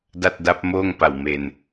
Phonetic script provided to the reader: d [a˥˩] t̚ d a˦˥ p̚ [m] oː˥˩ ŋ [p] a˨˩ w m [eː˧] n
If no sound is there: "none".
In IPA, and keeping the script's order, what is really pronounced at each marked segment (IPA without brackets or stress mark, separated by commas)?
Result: a˥˩, m, p, e˧